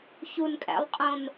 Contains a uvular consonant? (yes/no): yes